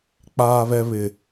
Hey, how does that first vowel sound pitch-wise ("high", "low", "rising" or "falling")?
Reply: low